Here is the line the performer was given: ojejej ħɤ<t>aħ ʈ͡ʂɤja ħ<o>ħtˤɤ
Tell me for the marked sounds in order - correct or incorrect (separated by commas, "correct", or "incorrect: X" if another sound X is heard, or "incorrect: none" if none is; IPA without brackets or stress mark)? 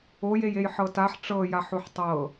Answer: correct, correct